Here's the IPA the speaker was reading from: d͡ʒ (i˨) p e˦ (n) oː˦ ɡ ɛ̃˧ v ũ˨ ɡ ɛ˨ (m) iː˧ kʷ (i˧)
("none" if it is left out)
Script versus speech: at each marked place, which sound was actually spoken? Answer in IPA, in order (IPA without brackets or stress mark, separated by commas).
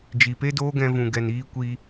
i˨, d, n, i˧